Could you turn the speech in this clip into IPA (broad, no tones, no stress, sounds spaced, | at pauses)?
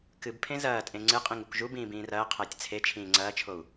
k ɨ b pʰ ẽ z ɐː tʼ ẽ ŋ͡ǀ ɨ qʼ ĩ ŋ u k ʒ u b ĩː b ĩː r ɐː qʰ ɐː tʲ t͡sʰ e t͡ʃʰ ĩː ŋ͡ǀ ɐː t͡ʃʰ o u̯